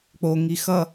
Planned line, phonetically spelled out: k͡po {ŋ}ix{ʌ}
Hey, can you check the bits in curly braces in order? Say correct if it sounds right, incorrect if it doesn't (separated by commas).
correct, correct